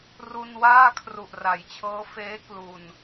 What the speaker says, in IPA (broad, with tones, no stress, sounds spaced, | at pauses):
r u˧ n w aː˥˩ kʰ r u˨˩ ʔ r a˩˦ j t͡ɕʰ ɤː˦˥ f eː˦˥ k l u˧ n